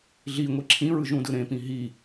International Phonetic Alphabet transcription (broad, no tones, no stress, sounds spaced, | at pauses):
ɮ i ŋʷ i ǁʰ ĩ ɹ ɯ ʒ ũ d ɯ ɾ ẽ p ĩ ɦ i